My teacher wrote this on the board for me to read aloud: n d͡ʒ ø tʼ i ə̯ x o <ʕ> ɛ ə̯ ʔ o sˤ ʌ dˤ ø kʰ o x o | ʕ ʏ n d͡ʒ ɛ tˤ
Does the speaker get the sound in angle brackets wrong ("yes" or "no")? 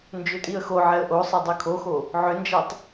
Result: no